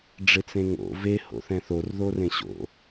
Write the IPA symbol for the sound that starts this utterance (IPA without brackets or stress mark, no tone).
ɖ͡ʐ